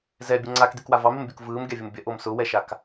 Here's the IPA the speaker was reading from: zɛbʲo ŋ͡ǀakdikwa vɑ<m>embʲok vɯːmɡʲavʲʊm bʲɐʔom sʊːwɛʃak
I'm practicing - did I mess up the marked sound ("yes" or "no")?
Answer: no